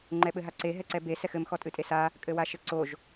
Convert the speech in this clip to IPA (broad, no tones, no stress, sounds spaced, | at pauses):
ŋ͡ǃ ɛ ɓ ɘ ɦ a ǀ e ɦ ɛ ǀ ɛ b e s ɛ x ɘ m x ɔ tʼ ɨ tʼ e s a | kʼ ɘ w a ʃ ɘ ǀ o ʒ